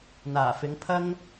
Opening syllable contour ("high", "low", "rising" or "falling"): low